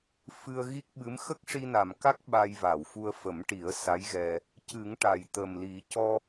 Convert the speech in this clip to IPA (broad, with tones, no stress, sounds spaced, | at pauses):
f ɨ˧ ə̯ ɣ i˦˥ k̚ ɓ ɨ˧˥ m x ə˦˥ k̚ ʂ i˧ n a˨˩ m k a˦˥ k̚ ɓ a˧ j v a˨˩˨ w f u˧ ə̯ f ə˨˩˦ m ʈ i˨˩˦ ə̯ s a˧˥ j ɣ ɛ˧ | c ɨ˨˩˦ ŋ ʈ a˨˩ j t̪ ə˨˩ m l i˨˩˦ c ɔ˧